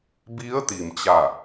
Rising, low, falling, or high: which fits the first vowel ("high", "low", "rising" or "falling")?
rising